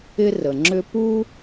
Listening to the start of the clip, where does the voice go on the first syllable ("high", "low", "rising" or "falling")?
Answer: high